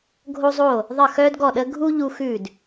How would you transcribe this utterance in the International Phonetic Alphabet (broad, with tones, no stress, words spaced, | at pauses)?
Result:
ɡʱo˥zˤo˥˩ | ðˤə˥˩xœː˥dɡɔ˥˩ ɗə˥ ɡʱu˥ ʎu˥xʉ˥˩d